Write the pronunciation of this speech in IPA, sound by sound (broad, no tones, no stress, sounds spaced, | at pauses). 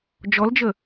d͡ʒ ɔ l d͡ʒ ə